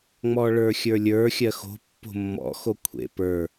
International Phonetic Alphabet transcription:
ŋ͡m ɔ ɭ ə˞ xʲ ə˞ lʲ ə˞ xʲ ɜ x o̤ pː o̤ mː ɔ̰ x o kʷʰ ḛ p ə˞

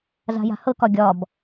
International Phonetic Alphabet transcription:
z a̤ j a̤ h ɤ k ɒ ɡʲ ɒ b

